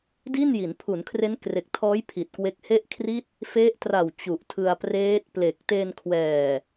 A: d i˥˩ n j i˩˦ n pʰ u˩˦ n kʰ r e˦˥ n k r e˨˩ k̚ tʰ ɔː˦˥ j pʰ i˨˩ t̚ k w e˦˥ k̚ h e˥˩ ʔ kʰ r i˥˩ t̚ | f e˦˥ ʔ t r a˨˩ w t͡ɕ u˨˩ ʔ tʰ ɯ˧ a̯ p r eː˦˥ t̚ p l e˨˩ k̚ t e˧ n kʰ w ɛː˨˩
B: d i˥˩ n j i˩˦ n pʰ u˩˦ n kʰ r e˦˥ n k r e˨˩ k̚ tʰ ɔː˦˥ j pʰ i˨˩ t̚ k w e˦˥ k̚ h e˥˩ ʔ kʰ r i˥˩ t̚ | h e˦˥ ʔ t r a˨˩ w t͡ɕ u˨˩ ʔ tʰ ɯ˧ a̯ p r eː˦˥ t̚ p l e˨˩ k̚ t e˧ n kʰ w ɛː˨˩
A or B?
A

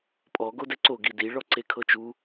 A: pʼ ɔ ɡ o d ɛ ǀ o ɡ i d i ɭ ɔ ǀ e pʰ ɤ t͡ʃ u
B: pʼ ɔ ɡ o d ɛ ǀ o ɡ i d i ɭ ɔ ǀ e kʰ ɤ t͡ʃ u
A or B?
B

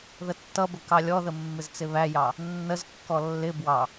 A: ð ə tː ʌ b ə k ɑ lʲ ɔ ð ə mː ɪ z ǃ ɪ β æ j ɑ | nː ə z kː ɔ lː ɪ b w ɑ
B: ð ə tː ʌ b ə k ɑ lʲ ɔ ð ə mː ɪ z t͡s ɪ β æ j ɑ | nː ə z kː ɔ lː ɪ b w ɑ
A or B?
B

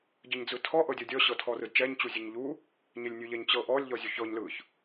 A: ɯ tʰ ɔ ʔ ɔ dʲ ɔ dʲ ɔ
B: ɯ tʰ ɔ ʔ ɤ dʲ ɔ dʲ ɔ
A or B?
B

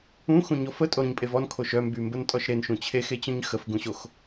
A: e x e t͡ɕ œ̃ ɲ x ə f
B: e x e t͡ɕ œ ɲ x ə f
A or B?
A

